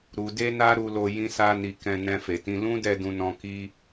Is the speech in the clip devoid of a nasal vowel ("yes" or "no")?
no